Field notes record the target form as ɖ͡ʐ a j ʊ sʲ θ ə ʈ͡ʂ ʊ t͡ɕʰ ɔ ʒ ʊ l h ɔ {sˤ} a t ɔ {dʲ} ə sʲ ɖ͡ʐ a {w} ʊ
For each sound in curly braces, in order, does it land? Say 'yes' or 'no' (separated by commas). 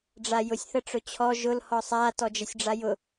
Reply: yes, no, no